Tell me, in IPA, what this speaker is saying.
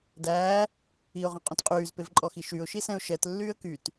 dæː | iʊ̯ʁɔ̃qʼõt qʼyːzpevǃʼɔxi ʃyʊ̯ʃisɛ̃ʊ̯ ʃɛtlːyːə̯ kyt

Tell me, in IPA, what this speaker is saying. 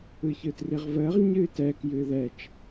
ɯçɯtriʁvəːʁ ɲɨːtɛk jɨːðɛt͡ʃ

